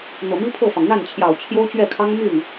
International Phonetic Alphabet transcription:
n̪ɤ˨˩mi˥pʰɤ˥˩fɑ˩ŋ n̪a˥˩nt͡ɕʰjɑ˨˩ʊ̯ t͡ɕʰjo˥ʊ̯t͡ɕɥɛ˥˩kʰɑ˥ŋ my˥˩n

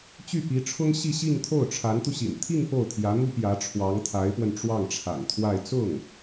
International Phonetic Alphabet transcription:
t͡ɕy˥˩pi˧˥ʈ͡ʂʰʊ˥ŋ ɕi˥˧ɕi˥˧ŋt̪ʰo˥˩ʊ̯ ʈ͡ʂʰa˧˥nt̪u˧ɕḭ˨˩n t̪ʰi˥˧ŋ po˥˩ʊ̯t̪ʰjä˧˥n̪u˥ pjä˧˥ʈ͡ʂʰwɑ˧˥ŋt̪ʰa˧˥ɪ̯pwə˧n ʈ͡ʂwɑ˥˩ŋʈ͡ʂʰa̰˨˩nt̪ʰwa˥˧ɪ̯ t͡sʊ˥˩ŋ

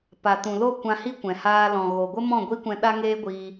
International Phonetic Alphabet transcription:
pa˨tũ˨lo˦˨ kʷã˧hi˦ kʷɛ̃˨ haː˧ lɔ̃˨ɣo˨ɡʷə˦ mɔ̃˦˨ɡʷi˦kʷɛ̃˧ ɗa˦ŋeː˦ɡʷiː˧

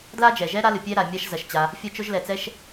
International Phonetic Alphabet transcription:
dla˥d͡ʒɛ˩ʒɛ˥ ɾa˥lɨ˩ pʲɛ˥ɾa˩ mʲa˥ʃ zɐ˩ʃt͡ɕa˩ | fʲɐ˥t͡ʃo˥ʒlɛ˩t͡sɛ˥ʃ

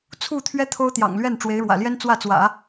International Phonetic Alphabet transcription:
t͡sʰu˥˩t̪ʰɥɛ˥ t̪ʰo˥ʊ̯ t̪jɑ̰˨˩ŋlɥɛ˥˩n ʈ͡ʂwe˧˥ɪ̯ɻwä̰˨˩ljɛ˥n t͡swä˥˩t͡swä̰˨˩˦

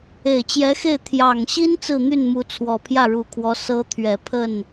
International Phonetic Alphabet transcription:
e˨˩ɪ̯t͡ɕjɛ˧˥xe˥˩ɪ̯ t̪ʰjɑ˨˩ŋɕi˥n t͡sɹ̩˥˧n̪y˥˩nmu˧˥ t͡sʰwɔ˨˩pʰjä˥˩ɻu˨˩kʰwɔ˧˥ sɤ˧˥ t̪ʰɥɛ˨˩ pʰə˥˩n

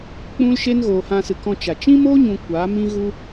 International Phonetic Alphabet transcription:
k͡pũ˦l ʃe˦nɣoː˨hã˧sɨ˨ kɔ̃˧t͡ʃa˨ t͡ʃĩ˦moː˦ɲũ˨ kʷa˨˦mĩ˦ ɣu˦

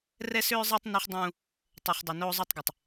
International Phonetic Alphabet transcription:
rɛ˦sʏː˦zˤɛ˦tˤ nu˦χdˤũː˦ | tˤɛ˦χdˤɵ˦ noː˦zˤo˦tˤɡɪ˨tˤ

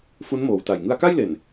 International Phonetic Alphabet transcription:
fu˦˥nmoː˩˦wta˨˩j ŋɯ˧a̯ka˥˩jle˨˩n

